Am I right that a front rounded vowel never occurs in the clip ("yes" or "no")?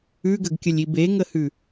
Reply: yes